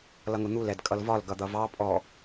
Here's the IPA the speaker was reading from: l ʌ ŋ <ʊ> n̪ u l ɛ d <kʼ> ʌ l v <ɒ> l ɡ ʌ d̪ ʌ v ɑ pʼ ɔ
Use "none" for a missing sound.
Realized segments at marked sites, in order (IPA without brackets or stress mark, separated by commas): ʊ, kʼ, ɒ